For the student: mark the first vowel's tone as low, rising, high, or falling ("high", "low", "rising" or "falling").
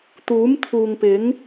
rising